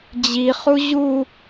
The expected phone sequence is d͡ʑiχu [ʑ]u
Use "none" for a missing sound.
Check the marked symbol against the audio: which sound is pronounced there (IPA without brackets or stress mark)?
ʑ